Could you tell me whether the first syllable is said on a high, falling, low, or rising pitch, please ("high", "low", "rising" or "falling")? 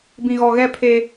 low